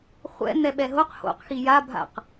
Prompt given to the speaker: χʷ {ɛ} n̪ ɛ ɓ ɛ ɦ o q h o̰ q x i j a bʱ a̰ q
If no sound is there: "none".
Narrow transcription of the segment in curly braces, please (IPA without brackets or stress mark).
ɛ̰